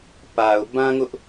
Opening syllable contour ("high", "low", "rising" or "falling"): low